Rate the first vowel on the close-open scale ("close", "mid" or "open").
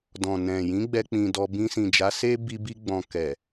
mid